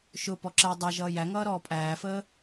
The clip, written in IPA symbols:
ʃʊ pɔǁɛ dˤæʒʌː jæŋʌːɾɔː pʼæːfəː

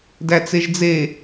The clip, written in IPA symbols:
dæt͡seʒd͡ze

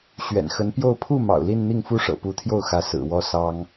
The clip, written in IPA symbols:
ɕɥɛ̰˨˩nxə˧˥npjo˥˧ʊ̯ pʰu˥˩ mɑ̰˨˩ʊ̯li˥˧nn̪i˥˩ŋ fu˥ʂɤ̰˨˩pu˧˥t̪ʰjo˥˩ʊ̯ xä˧˥ sɹ̩˨˩wɔ˥ sɑ˥ŋ

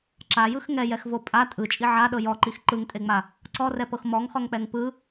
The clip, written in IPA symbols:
ǁajɯx ŋɛjɛxvo pʼa tʼɯt͡ʃʼi ʕaɗɤ jɔǃix ǃɯŋtʼeŋ͡ma | ǀɔrɛpɤx mɔŋχɔŋk͡pɛŋ pɯ

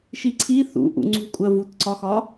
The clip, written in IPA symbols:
ʃiǀʰi θṵ ʔṵŋ͡ǀṳkʷʼɜ vutǀɒxɒ

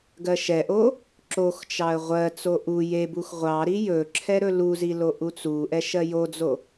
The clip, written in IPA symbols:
ɡɜʃɛʔo | ǁoxt͡ʃɑə̯ ʁʷɜt͡so ʔu jebux ʁʷɑ ɾijɵǁʰɛ ɾɵluzi loʔut͡suʔɛ ʃɜjod͡zo

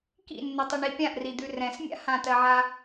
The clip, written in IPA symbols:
kḭnːʏtˤʏɳi pʲãʔrid̪ʉ rɛ̃smʲa̰ hãtɜʕa

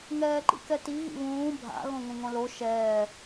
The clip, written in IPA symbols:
ŋɛːǃḭkɛti ɣḭβũː bʱa̰ ɣõŋũŋõlo ʃɛː

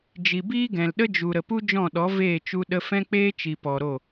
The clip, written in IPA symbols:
d͡ʒi˨biː˦ɡɛ̃˨lɗə˦ d͡ʒu˨ɾə˨pu˦ d͡ʒɔ̃˦˨ɗɔ˨˦ veː˦˨t͡ʃu˧ ɗə˧fɛ̃˦k͡peː˦ t͡ʃi˨pɔ˨ɾo˦˨

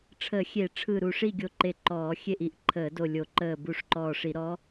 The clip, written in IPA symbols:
ʈ͡ʂʰə˧˩˧xʲe˧˩˧ʈ͡ʂʰɯ˧˩ ɾu˧˩ʂi˥˨ɡʲo˧˩ ǃe˧˩ǃɔː˧˩˧xʲe˥˨ʔi˧˩ʔ ǃʰəː˧˩˧do˧˩lʲo˧˩˧ ǃəː˧˩ bu˧˩ʂǃɔː˧˩ʂi˧˩˧ɾɔ˧˥

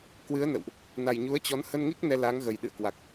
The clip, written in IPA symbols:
kwɨ˨˦ə̯nə̰˧˨wʔ | na˨˩jɲu˨˦ə̯t͡ɕɔ˨˦n hə˧nŋi˦˥k̚ nɛ˧laː˨˦ŋɣə˨˩j ɗɨ̰˧˨ə̯kwa˨˩k̚

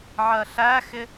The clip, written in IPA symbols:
ʕɜɬæxɪ

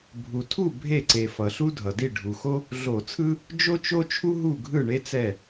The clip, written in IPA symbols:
bʱu˩tʰu˥˩ bʱe˥˩ǀe˩ fʌ˩ɬu˥ dʱʌ˩di˥˩ ɖʱu˩xo˥ | ɮo˧˩˧t͡sʰɯ˥ | d͡ʒo˥t͡ʃo˥t͡ʃʰu˥ ɦu˥˩ɡʱɯ˥˩ɳe˥t͡sɛ˥˩

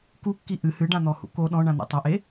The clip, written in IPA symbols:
kukːi ʔɨ hɨɖãn̪ɔhṵ ko ɗɔ̃ɳãn̪ḛ tˤɐʔe

